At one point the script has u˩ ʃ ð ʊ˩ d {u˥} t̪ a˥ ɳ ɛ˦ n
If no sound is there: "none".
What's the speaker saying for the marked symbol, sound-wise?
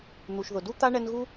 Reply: u˥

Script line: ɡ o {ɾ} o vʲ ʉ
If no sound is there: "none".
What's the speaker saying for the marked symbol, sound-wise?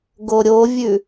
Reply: ɾʲ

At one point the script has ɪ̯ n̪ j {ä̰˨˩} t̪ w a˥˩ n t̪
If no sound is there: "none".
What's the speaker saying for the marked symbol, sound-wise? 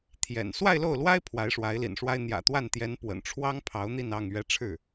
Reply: ä̰˨˩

